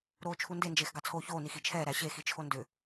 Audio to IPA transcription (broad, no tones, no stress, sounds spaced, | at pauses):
ɾ oː t͡ʃʰ u n d e n d͡ʒ eː x ɡ ɑ t͡sʰ oː ç oː n i x i t͡ʃʰ ɛː ɾ æ ɕ e x i t͡ʃʰ o n d ʏ